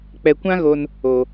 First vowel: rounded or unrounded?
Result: unrounded